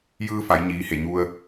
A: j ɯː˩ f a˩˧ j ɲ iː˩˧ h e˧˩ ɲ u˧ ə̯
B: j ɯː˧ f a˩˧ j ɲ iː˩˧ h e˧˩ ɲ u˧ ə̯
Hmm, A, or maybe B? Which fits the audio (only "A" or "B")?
B